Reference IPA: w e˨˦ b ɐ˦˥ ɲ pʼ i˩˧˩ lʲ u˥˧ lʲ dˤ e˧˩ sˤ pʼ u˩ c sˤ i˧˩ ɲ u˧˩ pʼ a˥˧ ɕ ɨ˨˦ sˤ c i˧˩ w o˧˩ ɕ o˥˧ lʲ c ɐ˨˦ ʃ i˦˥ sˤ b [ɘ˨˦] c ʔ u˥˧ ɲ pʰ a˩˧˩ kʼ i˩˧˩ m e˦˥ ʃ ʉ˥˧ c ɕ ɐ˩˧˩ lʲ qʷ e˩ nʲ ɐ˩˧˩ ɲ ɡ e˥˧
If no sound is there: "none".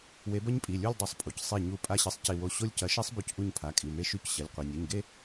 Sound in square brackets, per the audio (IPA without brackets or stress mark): ʉ˨˦